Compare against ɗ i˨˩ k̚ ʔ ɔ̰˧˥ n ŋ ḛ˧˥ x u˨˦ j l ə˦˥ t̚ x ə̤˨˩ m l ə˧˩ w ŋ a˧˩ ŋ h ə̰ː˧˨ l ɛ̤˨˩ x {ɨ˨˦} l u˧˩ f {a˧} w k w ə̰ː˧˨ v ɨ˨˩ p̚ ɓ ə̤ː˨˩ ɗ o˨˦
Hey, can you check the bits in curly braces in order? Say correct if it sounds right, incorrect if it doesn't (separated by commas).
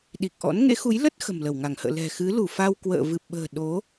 correct, correct